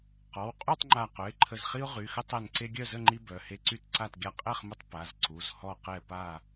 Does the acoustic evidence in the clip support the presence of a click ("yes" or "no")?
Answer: yes